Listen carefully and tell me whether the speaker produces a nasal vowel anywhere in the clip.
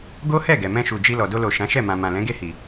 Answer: yes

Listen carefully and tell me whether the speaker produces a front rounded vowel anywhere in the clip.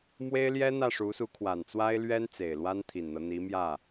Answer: no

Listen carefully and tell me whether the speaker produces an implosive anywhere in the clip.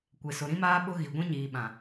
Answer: yes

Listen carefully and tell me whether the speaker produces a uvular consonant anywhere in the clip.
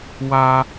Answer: no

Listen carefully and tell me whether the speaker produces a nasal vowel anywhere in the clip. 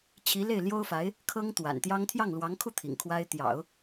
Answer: no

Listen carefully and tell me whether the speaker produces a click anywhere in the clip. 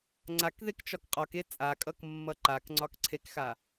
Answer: yes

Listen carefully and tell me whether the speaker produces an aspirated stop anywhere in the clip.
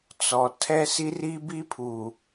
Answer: yes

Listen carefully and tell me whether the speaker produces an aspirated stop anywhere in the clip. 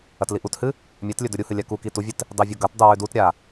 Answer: no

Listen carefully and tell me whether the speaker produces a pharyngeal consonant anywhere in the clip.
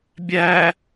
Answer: no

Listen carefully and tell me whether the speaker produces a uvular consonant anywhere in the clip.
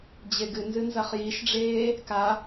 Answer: yes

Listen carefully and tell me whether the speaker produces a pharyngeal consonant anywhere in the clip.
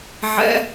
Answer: yes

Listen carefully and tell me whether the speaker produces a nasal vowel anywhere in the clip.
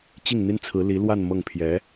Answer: no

